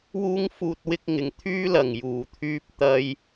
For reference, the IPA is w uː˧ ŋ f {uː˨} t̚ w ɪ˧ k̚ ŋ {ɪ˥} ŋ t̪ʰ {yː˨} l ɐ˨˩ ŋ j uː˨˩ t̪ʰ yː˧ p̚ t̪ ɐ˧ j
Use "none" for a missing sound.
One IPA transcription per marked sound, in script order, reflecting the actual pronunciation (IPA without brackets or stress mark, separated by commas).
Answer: uː˨, ɪ˨, yː˥